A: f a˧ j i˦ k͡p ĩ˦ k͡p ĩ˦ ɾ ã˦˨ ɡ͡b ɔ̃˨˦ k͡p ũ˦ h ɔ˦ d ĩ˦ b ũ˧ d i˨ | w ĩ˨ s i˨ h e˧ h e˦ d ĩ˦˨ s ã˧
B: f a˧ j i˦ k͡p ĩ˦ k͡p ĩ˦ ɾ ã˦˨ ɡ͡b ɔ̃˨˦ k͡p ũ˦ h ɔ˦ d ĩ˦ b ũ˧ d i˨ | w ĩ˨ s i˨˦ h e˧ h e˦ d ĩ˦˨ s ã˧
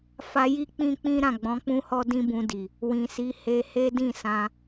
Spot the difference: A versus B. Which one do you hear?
B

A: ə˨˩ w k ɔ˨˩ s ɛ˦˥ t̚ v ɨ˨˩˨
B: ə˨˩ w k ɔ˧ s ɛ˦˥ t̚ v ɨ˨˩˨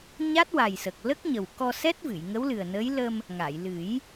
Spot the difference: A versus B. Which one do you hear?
B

